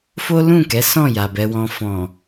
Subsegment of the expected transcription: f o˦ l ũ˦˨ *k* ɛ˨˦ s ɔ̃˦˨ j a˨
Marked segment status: correct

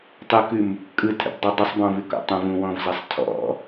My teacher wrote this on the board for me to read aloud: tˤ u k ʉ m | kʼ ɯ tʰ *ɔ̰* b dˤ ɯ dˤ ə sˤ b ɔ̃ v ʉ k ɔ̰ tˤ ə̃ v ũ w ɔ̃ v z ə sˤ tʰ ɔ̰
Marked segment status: incorrect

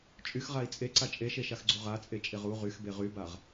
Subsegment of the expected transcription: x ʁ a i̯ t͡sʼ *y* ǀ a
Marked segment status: incorrect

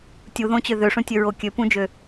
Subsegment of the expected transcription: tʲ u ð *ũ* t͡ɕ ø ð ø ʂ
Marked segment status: incorrect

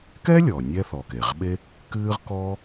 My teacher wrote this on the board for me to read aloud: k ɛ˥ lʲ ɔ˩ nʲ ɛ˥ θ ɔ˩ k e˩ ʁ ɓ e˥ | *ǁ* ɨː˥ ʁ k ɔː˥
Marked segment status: incorrect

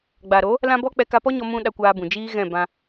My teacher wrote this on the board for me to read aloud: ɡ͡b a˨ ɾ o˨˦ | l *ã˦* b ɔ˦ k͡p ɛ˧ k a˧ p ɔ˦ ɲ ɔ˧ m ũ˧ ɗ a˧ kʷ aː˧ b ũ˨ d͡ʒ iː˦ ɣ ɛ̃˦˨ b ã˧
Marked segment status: correct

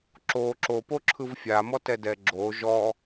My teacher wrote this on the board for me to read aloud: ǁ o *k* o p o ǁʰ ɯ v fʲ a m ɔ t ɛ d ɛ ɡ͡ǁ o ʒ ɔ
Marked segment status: incorrect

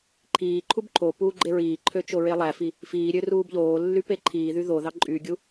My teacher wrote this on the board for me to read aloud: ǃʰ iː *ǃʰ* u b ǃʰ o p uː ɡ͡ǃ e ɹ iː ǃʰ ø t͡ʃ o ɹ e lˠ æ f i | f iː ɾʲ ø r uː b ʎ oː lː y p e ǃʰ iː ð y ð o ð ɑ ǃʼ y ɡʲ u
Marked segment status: correct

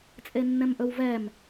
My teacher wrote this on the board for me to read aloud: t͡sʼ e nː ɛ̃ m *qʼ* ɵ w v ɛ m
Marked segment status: incorrect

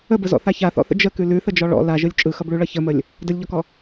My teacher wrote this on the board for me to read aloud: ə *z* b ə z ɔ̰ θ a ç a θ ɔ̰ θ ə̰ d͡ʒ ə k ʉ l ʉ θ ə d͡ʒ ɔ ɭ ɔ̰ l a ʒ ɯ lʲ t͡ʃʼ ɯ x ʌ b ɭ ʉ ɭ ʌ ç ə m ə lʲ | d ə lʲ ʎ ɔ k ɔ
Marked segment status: incorrect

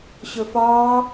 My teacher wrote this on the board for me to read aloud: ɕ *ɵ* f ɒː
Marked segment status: correct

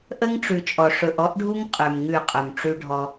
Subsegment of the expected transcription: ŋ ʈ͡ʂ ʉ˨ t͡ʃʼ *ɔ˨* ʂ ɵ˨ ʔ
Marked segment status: correct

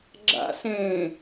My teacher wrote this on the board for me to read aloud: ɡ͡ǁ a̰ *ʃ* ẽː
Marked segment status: incorrect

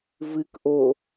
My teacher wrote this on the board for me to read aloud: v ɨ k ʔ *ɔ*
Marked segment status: incorrect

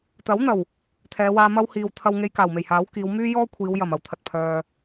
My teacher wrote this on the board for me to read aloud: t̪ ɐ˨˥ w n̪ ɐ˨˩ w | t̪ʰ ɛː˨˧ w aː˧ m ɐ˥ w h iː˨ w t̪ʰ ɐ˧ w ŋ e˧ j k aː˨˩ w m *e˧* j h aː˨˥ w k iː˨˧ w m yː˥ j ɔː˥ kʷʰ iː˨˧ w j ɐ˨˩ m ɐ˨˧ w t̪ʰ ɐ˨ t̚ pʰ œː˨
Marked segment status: incorrect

